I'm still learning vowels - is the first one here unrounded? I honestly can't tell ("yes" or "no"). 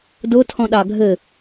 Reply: no